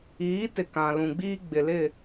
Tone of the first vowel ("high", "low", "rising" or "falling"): rising